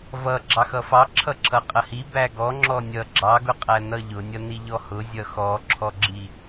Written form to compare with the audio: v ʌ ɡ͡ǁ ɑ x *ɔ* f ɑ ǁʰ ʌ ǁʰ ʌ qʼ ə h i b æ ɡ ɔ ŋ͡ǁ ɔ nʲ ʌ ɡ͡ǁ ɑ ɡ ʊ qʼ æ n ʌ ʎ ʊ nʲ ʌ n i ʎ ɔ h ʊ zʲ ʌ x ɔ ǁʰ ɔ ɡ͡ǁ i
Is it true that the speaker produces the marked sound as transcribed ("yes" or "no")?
no